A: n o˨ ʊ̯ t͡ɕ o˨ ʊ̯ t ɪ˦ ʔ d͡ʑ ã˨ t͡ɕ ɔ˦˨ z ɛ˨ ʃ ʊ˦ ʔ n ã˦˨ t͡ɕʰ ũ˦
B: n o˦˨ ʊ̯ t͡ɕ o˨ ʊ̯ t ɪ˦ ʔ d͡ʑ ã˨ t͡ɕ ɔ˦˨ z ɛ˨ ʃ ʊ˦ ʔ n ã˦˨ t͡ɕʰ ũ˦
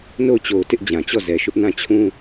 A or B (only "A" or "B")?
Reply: B